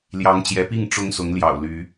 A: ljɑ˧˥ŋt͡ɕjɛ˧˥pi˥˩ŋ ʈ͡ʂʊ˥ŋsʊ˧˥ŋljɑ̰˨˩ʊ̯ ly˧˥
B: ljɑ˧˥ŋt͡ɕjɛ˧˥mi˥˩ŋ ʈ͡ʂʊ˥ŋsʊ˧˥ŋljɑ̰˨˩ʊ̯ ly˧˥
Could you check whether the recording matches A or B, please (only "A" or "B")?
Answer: A